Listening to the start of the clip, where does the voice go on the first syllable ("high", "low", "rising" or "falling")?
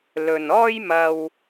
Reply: low